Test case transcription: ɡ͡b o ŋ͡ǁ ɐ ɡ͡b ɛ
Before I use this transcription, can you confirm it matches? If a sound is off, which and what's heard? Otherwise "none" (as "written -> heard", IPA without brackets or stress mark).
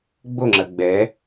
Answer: none